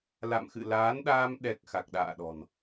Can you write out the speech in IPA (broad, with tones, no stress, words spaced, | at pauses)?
la̰˧˨mxɨ̰˧˨laː˨˦nɗaː˧m ɗɛ˨˩k̚ xa˨˩k̚ɗa̰ː˧˨ɗɔ̤˨˩n